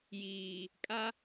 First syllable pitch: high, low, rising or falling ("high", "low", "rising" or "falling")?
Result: low